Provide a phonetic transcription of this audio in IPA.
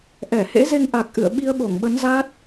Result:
ʔ ɛ˧˩ h ḛ˧˥ z e˧ ŋ ʔ a˨˩ k̚ ʔ ɨ̰˧˨ ə̯ ɓ i˧ ə̯ ɓ o˧˩ ŋ ɓ ə˨˦ n z a˦˥ t̚

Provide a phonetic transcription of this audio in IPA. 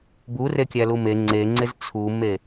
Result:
b u r e kʲ æ l u m e ŋ͡ǀ e ŋ͡ǀ e z t͡sʰ u m e

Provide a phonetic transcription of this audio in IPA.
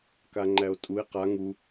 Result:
k a ŋ͡ǃ æ o̯ tʼ u e̯ q a ŋ u

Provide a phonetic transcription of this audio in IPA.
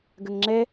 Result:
ɡ ə ŋ ŋ͡ǁ ɛ

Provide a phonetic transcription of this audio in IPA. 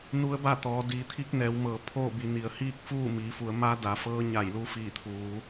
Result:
n u˧˥ ə̯ b a˥˨ t̪ ɔː˩˧ d iː˩˧ t̪ʰ i˧˥ k̚ n ɛː˩˧ w m ɤː˩˧ pʰ oː˥˨ b i˩˧ n i˩ ə̯ h iː˥˨ k̚ f uː˥˨ m iː˩˧ f u˩˧ ə̯ m a˧˥ d a˩˧ f ɤː˧˥ ɲ a˧˩ j l u˧ f iː˧˩ t̪ʰ uː˩˧

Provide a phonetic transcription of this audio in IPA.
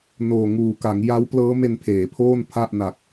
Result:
n oː˨˩ ŋ uː˨˩ k a˩˦ ŋ j a˦˥ w p l ɤː˦˥ m e˧ n pʰ eː˩˦ pʰ oː˥˩ n pʰ a˥˩ ʔ n a˨˩ k̚

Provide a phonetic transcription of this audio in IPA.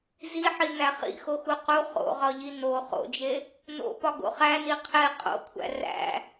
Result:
z i ħ i n̪ æ χ ḭ x o x u q u χ o̰ ʁ ɒ ʎ i n o χ o̰ d͡ʒ e | n o̰ p ɒ ɡ o̰ χ æ n i qʰ e qʼ o̰ kʷʰ æ̰ r æ̰

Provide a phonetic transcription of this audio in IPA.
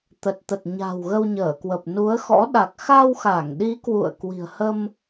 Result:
t̪ ə˨˩ t̚ t̪ ə˨˩ t̚ ɲ a̤˨˩ w ɣ ə˧ w ɲ əː˧˩ k w ə˨˩ p̚ n u˨˦ ə̯ x ɔ̰˧˥ ɗ a˨˩ k̚ x a˧ w x a˧˩ ŋ ɗ i˨˦ k w ṵ˧˨ ə̯ k w i̤˨˩ ə̯ h ə˧ m

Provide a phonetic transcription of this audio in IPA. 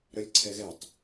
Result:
ɾ œ lʲ ǀʰ ɛ ɣ ɛ tˤ

